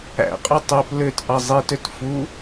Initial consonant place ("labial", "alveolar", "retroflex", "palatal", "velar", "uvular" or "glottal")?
uvular